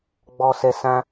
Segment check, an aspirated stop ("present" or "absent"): absent